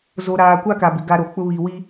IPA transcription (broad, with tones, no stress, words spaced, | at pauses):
zo˨ɾaː˨kʷa˦ ka˨bɪ˨ ɡa˦ɾo˨ k͡pʊ˦βi˨wi˦